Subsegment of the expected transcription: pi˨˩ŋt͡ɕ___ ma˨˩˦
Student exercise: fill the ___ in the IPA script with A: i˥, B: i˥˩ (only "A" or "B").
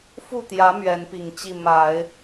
B